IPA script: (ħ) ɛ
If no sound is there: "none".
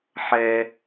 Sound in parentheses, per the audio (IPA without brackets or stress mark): ħ